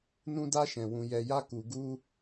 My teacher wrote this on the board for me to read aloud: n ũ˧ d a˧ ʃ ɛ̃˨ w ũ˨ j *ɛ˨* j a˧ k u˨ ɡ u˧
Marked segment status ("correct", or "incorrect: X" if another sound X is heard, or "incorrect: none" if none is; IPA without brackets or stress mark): correct